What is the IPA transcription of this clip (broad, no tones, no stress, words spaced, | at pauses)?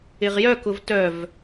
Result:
ɪʁjœ kʊvtœv